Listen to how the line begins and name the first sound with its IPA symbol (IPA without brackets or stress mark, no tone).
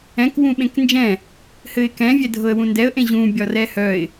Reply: ɛ̃